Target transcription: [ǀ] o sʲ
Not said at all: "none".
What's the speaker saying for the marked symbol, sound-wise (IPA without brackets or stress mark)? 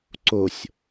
ǀ